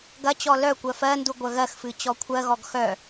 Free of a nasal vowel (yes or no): yes